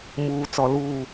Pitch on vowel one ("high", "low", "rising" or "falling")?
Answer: low